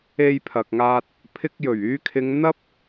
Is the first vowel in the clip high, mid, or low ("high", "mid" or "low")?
mid